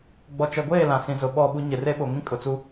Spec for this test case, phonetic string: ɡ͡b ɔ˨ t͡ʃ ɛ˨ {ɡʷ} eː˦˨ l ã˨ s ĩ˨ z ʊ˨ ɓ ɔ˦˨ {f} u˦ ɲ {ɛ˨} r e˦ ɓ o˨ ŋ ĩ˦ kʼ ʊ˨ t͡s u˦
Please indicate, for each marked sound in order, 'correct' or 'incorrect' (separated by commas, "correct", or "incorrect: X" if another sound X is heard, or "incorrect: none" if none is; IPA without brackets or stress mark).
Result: correct, incorrect: ɓ, incorrect: ɪ˨